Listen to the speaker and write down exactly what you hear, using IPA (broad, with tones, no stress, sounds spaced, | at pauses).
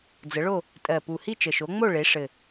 d͡z ə˩˧ ɭ o˦˨ | tʼ ɜ˨˩ p u˨˩ h i˦˨ t͡ʃ ə˨˩ ʃ o˩˧ ŋ͡m o˦˨ ɭ e˩˧ ʂ ɘ˨˩